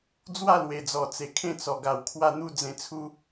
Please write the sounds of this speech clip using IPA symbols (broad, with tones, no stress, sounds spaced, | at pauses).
d͡z w a˥˧ l w e˨˩ d͡z ɔ˨˩ t͡s e˨˩ kʰ ẽ˥˧ t͡s ɔ˨˩ ɡ a˨˩ w kʰ w a˥˧ n̪ u˦ d͡z ẽ˧ t͡sʰ u˦